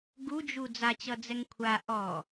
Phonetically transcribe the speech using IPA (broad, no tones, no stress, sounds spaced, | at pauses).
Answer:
ɡ u d͡ʒ u d͡z a t͡ɕ ʌ d͡z ɛ ŋ kʷʰ a ʔ ɔ